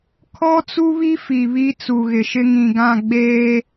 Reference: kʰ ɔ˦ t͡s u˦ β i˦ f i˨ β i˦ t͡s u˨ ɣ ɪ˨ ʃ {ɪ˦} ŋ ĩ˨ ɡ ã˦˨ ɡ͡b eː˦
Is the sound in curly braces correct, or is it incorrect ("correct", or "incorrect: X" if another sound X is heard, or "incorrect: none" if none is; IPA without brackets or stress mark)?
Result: correct